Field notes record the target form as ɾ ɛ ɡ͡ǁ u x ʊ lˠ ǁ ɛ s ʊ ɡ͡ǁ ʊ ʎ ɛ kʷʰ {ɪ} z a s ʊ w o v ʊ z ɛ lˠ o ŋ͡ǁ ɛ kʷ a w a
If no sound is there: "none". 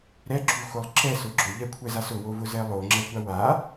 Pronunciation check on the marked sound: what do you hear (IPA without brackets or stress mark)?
ɛ